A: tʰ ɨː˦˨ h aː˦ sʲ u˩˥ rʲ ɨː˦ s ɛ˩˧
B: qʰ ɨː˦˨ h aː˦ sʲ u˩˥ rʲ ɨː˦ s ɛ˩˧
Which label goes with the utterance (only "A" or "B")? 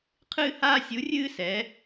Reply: B